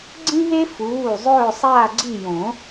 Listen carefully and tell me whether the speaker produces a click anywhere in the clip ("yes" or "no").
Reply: yes